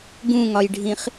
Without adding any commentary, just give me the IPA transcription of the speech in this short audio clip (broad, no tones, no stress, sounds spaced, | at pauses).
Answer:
ɡ ũ ŋ ɒ j ɖʱ ĩ χ